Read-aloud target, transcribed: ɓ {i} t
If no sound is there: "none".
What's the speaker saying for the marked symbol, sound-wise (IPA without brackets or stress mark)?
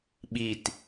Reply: i